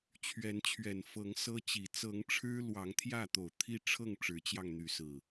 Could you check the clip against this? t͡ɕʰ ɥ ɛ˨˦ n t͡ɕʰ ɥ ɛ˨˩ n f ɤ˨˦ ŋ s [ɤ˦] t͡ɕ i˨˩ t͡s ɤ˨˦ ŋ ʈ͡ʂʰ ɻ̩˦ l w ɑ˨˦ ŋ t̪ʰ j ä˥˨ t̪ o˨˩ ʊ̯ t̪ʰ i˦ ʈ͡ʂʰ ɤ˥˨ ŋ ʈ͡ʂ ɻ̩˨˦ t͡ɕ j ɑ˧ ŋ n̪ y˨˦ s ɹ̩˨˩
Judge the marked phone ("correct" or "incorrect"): correct